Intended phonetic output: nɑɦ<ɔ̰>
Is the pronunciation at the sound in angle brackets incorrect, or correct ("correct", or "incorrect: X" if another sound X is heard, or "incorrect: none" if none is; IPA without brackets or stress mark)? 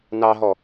incorrect: ɔ